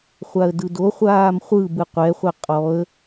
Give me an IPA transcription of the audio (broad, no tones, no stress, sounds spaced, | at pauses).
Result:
χʷ a ə̯ d ɯ d o χʷ aː m χʷ ɯ b ɯ qʷ ɛ χʷ ɛ qʼ ɔ ə̯